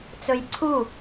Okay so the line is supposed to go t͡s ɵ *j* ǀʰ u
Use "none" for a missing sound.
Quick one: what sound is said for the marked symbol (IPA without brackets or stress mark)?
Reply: j